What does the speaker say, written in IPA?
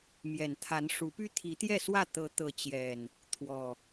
m j ɛ˨˩ n t̪ʰ a˨˦ n ʂ u˨˦ p y˦ t̪ʰ i˨˦ t̪ j ɛ˥˨ s w ä˥˨ t̪ ɤ˨˦ t̪ ɤ˨˦ t͡ɕ j ɛ˨˩ n | t̪ʰ w ɔ˨˩

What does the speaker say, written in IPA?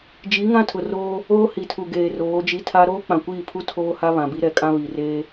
d͡ʒ i˨˦ ŋ ã˦ tʰ ʊ˨ r oː˦ | oː˦ h i˨ tʰ u˨ ɡ eː˨ r oː˨˦ d͡ʒ i˦ tʰ a˦ ɾ oː˦ k͡p ã˨ kʷ iː˦˨ pʰ u˦ tʰ oː˦ h a˦ β ã˨ b i˦ ɾ ɛ˨˦ kʼ ã˦ β i˨ r eː˦

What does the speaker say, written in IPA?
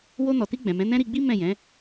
w o˧ n ɔ˨ t i˧ ɡ͡b ɛ̃˨ m ɛ̃˨˦ n ɛ̃˦ ɾ i˧ ɡ͡b i˦ m ɛ̃˦˨ j ɛ̃˨˦

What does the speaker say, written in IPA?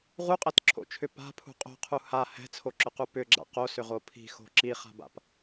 ʁ u qʼ ɛ t ǁʰ o̰ t͡ʃʰ ʏ p a̤ pʰ ṳ qʼ o̤ qʰ u h a h ɛ̤ t͡sʰ o ǁ ʏ q u p ʏ ɡ͡ǁ a̰ q o s ʏ ʁ o pʰ i̤ x o̤ ǁ i χ a̤ b a̰ p

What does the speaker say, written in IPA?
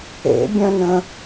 ḛ bʲ œ̃ n ə̃

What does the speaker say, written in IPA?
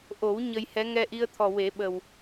ʔ o˨˩˦ w ɲ ə˧ j h ɛ˧˥ ŋ ɛ˧ ʔ i˧ ə̯ t̪ʰ ɔ˨˩ w e˨˩˦ ɓ ə˨˩ w

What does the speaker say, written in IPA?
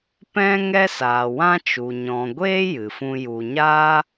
p ɛ̃˦ ŋ ɛ˦ s aː˨ w ã˦ t͡ʃ u˨ ɲ ɔ̃˨ ɡʷ eː˦ j ɨ˨ f ũ˦ j u˧ ɲ aː˦

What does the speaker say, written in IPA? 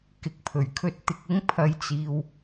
k ɪ˨˥ k̚ pʰ ɵ˨˩ ɥ kʰ ɵ˧ t̚ t̪ ɪ˨ k̚ ɪ˧ ŋ pʰ ɐ˧ j t͡s iː˨ w

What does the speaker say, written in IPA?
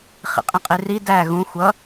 χ ḭ qʼ ĩ qʼ i r i d æ ɣ ũ xʷ ʌ

